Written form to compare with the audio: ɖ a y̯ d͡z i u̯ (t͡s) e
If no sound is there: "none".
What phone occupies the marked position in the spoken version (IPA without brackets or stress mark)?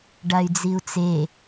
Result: t͡s